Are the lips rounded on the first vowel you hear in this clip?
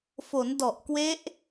yes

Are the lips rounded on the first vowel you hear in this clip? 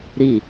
no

